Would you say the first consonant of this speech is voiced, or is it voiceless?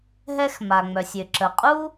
voiced